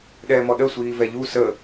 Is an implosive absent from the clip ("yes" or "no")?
no